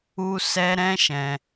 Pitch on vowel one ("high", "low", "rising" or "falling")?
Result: high